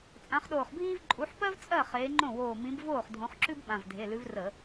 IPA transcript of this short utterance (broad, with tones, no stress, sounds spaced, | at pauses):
t͡sʼ ã˨˦ χ ɗ oː˧˩ χ bʱ iː˥ v ǃʼ u˨˦ ħ p ɜ˥ v t͡sʼ ɜ˥˩ χ eː˨˦ ŋ͡ǃ õ˥˩ w oː˧˩ m ĩ˨˦ b v oː˥˩ χ dʱ õ˨˦ χ ǁ ʉ˥ b ɓ ã˩˧˩ v dʱ e˩˧˩ l ʉ˨˦ v r ə˧˩˧